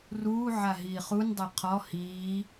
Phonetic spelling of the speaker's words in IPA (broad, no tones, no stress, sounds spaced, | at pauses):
r uː ʕ a ɦ iː χ u n dˤ e qʰ ɔ h iː